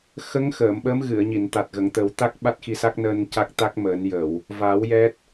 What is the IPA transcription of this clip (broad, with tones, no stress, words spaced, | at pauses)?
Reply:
xə˧˥ŋ xəː˨˩˨mɓəː˧˥m ɣɨ˨˩˨ə̯ɲi˨˩˨n t̪a˨˩t̚ɣə˨˩˨ŋ t̪ə˨˩˦wt̪a˦˥k̚ ɓa˦˥t̚xi˧sa˦˥k̚nəː˧n ca˦˥k̚t̪a˦˥k̚məː˨˩˦n jə˨˩˨w | va˨˩˦w jɛ˦˥t̚